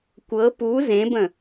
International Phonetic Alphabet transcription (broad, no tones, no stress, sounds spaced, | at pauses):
kʷ ɤ p u z ẽ b ə̃